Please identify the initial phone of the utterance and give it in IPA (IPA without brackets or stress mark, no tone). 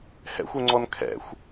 h